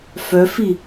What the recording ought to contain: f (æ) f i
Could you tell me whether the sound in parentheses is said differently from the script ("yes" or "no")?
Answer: yes